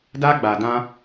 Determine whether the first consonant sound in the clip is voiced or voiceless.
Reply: voiced